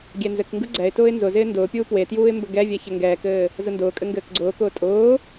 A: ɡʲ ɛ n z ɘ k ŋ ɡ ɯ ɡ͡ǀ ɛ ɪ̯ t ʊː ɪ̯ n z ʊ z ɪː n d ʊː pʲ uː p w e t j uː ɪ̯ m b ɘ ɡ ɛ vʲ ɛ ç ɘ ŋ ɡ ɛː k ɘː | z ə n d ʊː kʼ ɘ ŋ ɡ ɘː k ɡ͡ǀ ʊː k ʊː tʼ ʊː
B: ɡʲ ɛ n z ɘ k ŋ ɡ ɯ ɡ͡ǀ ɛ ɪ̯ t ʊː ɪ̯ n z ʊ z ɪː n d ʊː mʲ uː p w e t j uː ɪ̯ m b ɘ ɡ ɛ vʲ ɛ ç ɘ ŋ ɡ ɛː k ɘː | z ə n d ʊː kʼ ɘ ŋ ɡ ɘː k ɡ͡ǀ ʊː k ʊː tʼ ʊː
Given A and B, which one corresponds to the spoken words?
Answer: A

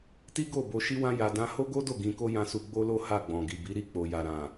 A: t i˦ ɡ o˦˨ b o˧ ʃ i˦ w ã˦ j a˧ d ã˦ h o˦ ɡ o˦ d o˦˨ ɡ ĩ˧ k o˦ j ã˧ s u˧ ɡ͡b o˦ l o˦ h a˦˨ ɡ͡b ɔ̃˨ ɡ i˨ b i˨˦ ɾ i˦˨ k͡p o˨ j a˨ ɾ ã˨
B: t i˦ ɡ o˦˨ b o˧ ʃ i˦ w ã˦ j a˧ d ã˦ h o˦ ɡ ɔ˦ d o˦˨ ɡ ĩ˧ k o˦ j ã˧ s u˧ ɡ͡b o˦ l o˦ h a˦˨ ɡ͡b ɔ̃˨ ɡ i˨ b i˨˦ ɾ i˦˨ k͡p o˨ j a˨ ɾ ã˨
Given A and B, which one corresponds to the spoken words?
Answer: A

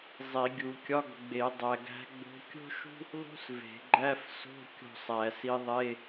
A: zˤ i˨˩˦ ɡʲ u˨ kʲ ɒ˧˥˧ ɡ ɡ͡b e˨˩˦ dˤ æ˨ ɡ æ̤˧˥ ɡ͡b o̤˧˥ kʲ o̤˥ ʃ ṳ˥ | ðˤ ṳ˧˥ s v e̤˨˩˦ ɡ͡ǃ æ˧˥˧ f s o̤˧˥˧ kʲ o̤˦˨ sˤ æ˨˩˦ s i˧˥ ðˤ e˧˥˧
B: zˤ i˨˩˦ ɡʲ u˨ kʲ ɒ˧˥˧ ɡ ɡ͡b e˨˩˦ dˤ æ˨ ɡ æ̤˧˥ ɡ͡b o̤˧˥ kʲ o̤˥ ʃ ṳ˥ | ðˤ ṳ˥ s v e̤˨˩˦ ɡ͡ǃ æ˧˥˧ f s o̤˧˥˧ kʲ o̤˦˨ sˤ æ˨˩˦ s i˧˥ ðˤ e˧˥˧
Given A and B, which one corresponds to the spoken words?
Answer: B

